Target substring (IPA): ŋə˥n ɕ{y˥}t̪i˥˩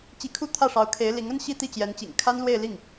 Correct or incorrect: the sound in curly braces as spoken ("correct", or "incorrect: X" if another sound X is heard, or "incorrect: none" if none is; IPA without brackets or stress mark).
incorrect: i˥